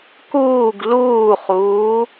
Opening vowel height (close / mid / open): close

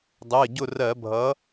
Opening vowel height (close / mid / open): mid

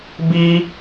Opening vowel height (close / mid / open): close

